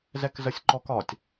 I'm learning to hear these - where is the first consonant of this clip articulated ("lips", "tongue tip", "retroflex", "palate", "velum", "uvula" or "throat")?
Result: tongue tip